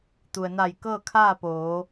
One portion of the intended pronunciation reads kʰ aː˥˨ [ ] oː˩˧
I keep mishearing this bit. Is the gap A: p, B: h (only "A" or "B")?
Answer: A